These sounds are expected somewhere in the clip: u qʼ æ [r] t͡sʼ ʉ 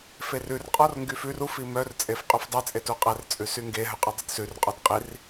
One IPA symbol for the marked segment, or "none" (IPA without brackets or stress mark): r